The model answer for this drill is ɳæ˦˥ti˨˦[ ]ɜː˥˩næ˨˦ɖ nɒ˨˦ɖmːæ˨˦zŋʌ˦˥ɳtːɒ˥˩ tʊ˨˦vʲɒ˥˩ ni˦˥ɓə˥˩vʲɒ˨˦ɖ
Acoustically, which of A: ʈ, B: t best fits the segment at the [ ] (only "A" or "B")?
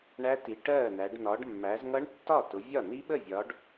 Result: A